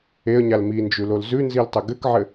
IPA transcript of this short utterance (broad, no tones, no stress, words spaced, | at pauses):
eə̯ɲal mind͡ʒʉlol zʉnziltˤɘ ɡɘkʕɘ